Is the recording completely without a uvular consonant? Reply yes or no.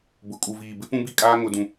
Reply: yes